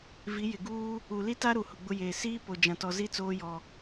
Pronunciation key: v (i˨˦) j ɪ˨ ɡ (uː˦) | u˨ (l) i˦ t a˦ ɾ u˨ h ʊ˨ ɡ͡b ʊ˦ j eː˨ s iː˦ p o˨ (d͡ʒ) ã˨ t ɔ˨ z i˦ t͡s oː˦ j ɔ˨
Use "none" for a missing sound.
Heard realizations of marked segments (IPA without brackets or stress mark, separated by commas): i˨˦, uː˦, l, d͡ʒ